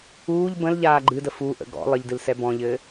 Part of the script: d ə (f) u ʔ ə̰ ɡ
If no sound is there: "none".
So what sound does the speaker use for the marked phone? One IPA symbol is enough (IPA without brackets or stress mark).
f